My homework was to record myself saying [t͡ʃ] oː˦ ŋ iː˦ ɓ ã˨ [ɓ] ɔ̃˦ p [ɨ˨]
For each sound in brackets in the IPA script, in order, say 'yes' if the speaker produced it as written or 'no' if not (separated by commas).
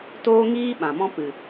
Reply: no, no, yes